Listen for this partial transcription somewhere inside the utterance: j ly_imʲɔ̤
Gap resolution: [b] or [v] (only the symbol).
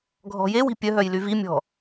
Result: v